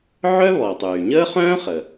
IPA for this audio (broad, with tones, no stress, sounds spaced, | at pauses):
ʕ œ˥ β ɔ˩ tˤ yː˩ ɲ əː˥ χ œ̃ː˥ χ ə˩